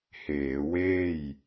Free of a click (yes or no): yes